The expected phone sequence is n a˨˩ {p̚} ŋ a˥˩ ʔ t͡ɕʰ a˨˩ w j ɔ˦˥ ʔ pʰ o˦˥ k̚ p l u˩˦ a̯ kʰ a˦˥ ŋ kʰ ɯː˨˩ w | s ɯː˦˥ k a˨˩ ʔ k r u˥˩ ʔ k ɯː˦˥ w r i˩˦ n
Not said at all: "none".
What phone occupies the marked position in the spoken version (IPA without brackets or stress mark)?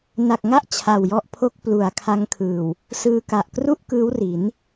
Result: k̚